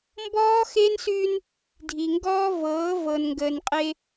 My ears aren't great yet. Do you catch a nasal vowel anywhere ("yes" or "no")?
no